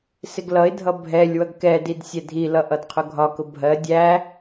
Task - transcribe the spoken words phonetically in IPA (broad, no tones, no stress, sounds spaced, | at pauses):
s ɪ ɡ l ʌ ɪ̯ dʱ ʌ bʱ ɛ lʲ w ʌ ɡ k ɛ d i d sʲ ɛ dʱ i l ʌ ʔ ʌ d qʰ ʊ ɡʱ ɒ k ʊ bʱ ɜ dʲ æ